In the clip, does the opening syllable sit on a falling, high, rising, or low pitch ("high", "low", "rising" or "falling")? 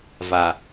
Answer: low